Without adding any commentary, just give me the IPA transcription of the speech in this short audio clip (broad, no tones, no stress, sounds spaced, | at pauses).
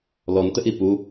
l ɔ n t ə ʔ i p u